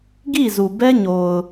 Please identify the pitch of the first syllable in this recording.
falling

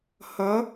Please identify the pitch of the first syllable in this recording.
rising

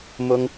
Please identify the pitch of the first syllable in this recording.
high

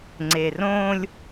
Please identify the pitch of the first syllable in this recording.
low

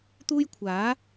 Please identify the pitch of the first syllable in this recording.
high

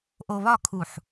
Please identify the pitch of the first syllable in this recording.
low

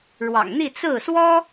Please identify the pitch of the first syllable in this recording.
low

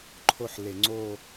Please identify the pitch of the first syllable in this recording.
falling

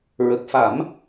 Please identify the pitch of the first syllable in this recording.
low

